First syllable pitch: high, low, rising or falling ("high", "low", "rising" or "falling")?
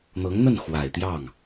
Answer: rising